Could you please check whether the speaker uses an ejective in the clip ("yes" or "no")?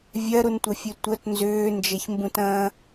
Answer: no